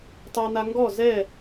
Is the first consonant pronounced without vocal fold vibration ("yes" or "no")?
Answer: yes